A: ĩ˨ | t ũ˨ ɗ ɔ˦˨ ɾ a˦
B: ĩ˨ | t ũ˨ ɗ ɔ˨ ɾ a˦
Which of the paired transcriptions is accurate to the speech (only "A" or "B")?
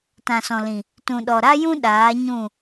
B